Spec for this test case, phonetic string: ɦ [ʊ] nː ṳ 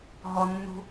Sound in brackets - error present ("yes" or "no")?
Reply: yes